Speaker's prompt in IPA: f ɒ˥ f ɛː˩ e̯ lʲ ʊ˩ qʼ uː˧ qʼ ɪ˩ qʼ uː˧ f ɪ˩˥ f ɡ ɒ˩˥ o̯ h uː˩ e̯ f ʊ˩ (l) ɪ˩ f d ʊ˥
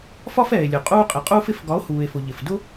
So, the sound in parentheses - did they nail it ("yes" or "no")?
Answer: no